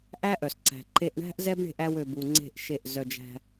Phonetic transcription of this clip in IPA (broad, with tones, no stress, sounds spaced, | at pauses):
ʔ æ˦ ʔ œ˨ s ǀ æ̤˨ ǃ e˧ ʔ ɳ æ̤˦ ʔ z ɛ˦ b ɳ e̤˧ ʔ æ˧ w ø˨ b u˨ ŋ͡ǀ e̤˦˨ ʔ ʃ e˦˨ ʔ z œ˧ d͡ʒ æ̤˧